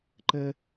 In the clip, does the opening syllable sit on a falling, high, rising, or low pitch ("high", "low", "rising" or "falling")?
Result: high